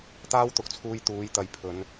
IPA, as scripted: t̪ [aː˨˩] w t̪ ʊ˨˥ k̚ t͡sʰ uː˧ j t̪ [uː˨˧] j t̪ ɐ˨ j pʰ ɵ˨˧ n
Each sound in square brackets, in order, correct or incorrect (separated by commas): incorrect, correct